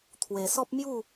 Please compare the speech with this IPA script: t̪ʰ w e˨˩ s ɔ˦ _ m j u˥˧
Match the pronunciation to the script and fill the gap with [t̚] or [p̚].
p̚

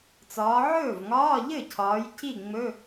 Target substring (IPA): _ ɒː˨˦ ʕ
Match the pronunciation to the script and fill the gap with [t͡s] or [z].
t͡s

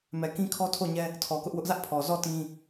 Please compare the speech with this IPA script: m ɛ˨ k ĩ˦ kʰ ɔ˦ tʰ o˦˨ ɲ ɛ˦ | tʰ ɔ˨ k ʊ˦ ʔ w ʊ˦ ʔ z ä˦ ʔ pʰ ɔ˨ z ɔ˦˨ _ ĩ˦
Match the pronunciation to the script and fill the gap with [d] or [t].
t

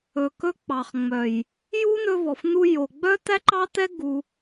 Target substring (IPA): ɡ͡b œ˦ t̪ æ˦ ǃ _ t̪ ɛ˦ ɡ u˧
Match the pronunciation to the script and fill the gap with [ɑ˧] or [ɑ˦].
ɑ˦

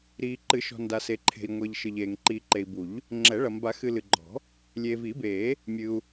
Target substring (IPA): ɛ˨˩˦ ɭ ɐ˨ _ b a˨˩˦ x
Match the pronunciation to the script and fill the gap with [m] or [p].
m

